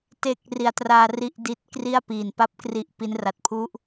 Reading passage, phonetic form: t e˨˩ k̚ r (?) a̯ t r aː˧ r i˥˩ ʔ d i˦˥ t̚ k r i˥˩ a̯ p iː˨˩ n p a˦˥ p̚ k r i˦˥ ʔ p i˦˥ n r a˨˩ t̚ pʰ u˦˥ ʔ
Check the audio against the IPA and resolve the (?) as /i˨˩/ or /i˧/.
i˨˩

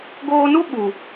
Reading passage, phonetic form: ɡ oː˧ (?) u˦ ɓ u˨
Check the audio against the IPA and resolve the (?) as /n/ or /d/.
n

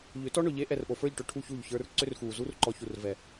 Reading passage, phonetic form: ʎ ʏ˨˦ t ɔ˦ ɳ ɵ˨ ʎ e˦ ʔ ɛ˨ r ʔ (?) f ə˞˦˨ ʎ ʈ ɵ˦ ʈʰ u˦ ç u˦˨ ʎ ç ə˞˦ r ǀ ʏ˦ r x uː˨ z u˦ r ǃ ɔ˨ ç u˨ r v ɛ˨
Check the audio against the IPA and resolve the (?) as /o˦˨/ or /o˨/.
o˨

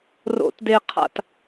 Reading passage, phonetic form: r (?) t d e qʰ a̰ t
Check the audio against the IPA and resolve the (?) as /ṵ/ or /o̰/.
o̰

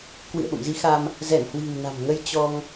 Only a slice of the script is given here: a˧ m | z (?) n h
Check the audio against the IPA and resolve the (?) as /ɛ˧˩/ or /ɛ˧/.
ɛ˧˩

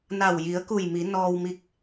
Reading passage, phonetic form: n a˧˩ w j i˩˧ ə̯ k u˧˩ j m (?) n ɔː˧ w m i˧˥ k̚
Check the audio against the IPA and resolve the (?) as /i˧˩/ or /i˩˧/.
i˩˧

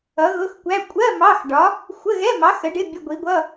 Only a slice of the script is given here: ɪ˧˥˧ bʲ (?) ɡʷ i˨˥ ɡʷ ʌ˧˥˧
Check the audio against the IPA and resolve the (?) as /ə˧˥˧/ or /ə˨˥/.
ə˧˥˧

